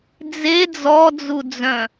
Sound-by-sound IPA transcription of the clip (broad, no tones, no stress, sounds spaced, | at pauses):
d͡z e d͡z ɔ d͡z u d͡z œ̃